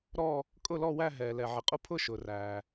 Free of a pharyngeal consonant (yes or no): no